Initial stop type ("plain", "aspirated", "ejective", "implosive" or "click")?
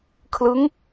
aspirated